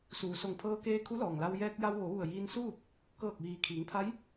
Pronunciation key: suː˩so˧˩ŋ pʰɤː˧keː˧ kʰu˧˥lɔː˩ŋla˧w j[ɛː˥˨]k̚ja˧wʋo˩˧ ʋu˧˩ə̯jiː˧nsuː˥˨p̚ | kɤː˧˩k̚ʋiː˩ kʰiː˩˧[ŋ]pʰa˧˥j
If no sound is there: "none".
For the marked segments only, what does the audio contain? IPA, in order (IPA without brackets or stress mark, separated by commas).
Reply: ɛː˧, ŋ